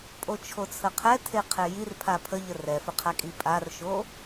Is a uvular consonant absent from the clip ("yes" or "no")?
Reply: no